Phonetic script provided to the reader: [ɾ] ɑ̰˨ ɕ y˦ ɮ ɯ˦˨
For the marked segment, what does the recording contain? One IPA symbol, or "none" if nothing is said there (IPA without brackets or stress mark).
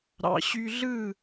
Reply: ɾ